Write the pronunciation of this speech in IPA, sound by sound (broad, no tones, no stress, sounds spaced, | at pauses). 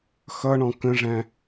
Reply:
x ʌ ɳ ɔ̃ k ə̃ ʐ æ̃